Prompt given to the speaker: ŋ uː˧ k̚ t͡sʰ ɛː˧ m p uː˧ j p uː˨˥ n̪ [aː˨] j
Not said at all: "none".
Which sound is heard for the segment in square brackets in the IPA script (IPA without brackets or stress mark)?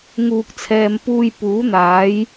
aː˨˥